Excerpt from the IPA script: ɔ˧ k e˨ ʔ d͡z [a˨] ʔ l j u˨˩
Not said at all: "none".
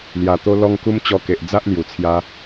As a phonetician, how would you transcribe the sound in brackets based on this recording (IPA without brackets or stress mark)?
a˦